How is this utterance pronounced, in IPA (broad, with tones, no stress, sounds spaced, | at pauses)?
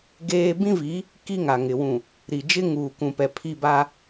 ɡ eː˦ b ĩ˦ v i˨˦ | k i˦ ŋ a˨ ŋ ɪ˨ w ũ˨ | ɾ i˨ d͡ʒ ɪ˦ ŋ uː˨ k ũ˨ p ɛ˨ pʰ i˦˨ b aː˦